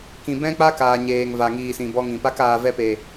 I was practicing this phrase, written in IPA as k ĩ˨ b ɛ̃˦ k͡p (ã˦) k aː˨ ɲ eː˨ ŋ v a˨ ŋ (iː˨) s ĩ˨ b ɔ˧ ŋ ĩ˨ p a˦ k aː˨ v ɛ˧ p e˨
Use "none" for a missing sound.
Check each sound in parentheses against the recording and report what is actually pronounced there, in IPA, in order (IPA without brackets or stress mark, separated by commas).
a˦, iː˨